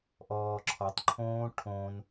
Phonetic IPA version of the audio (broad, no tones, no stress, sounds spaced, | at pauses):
ʔ ɔː ǁʰ ɔ tˤ ǃʰ õː ʈʰ õ n